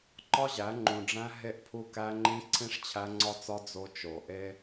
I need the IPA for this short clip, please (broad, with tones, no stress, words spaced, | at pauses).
ǃɒ˦ʑæ˨˦ŋ͡ǃũ˨ɖ͡ʐæ̃˦ ɦe˦˨ʔpʰu˦kæ˦ŋ͡ǃĩ˦ ǀʰĩ˦ʂt͡ɕʰæ˦ŋ͡ǀɒ˦t͡sɒ˦ d͡zo˦t͡ʃo˨ ʔe˦